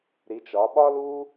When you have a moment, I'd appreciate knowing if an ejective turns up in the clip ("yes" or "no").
no